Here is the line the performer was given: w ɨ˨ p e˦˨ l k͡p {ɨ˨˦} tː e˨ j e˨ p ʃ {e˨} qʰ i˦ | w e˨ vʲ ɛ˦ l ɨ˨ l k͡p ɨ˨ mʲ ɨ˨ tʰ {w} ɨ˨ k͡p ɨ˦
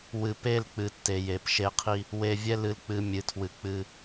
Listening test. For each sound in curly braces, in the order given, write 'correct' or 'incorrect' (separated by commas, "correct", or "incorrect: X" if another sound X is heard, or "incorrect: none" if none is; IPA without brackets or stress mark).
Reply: correct, incorrect: e˦, correct